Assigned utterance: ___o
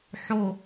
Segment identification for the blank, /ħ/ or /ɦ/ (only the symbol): ħ